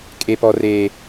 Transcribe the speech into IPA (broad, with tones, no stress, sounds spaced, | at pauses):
kʼ e˦ p ɔ˦ r eː˦